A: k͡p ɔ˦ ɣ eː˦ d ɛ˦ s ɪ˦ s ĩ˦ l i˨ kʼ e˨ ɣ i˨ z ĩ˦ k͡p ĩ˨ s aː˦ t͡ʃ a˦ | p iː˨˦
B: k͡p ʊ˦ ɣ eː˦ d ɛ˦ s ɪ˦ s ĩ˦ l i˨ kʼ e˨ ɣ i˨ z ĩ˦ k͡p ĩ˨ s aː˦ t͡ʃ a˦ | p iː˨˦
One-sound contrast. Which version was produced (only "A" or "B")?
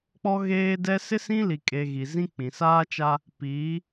A